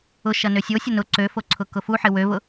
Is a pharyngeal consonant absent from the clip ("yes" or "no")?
no